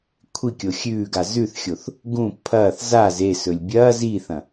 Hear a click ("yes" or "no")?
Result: no